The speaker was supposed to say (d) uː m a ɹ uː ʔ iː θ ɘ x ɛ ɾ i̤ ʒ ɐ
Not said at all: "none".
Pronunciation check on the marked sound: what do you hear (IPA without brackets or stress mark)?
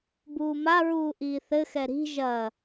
b